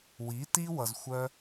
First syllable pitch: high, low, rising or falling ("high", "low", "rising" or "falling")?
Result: rising